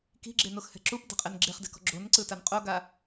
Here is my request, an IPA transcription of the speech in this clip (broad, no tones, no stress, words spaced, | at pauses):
ki̤ɡ͡ǁenoxhɛ̤ ǁupdɛ̤qʼen ɡ͡ǁeχdɛ̤kɔ̤ ɡ͡ǁonǀɯtan qʼoɡa